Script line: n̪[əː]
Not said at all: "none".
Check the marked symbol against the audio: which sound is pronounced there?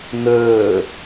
əː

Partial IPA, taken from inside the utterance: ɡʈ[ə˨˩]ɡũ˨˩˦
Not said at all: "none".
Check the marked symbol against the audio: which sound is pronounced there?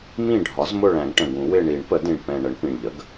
ə̃˨˩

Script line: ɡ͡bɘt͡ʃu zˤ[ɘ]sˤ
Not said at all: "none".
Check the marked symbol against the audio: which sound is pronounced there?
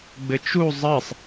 ɘ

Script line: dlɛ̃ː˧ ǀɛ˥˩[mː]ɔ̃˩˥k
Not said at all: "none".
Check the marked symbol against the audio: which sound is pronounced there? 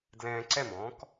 m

